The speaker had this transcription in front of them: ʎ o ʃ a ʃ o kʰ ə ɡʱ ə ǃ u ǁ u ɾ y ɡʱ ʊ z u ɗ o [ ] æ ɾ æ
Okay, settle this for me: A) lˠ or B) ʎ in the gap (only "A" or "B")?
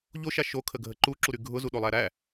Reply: A